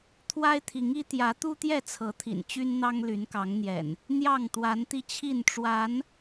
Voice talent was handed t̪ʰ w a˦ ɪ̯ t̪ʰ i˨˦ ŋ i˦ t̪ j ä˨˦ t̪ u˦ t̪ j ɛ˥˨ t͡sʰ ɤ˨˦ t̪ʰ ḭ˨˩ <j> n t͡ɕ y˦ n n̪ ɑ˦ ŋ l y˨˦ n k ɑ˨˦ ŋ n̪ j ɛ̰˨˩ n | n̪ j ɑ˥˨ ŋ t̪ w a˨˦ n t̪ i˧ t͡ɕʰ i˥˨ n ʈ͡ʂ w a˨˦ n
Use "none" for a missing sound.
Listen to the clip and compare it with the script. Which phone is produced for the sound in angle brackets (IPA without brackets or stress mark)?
none